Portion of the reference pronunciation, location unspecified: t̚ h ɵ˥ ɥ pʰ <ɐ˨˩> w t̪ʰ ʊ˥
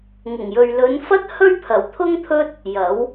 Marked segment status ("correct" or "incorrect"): correct